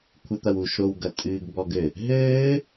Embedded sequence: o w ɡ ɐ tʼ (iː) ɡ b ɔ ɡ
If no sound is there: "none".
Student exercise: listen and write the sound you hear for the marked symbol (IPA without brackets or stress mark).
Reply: ɨː